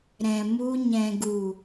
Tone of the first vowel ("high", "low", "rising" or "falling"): low